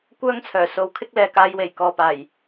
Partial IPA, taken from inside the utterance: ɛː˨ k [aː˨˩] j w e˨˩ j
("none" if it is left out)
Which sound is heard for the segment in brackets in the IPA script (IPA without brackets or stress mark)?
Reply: aː˨˧